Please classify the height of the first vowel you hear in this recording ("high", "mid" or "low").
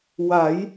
low